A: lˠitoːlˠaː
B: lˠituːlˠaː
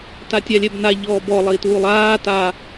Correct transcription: B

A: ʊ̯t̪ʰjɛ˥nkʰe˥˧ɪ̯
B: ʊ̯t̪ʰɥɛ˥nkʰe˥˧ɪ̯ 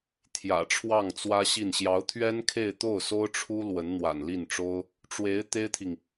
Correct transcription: B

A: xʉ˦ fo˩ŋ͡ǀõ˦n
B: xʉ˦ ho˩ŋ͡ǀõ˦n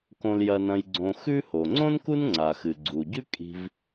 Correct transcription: B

